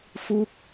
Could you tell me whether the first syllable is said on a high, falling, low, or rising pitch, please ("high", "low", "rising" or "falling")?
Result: falling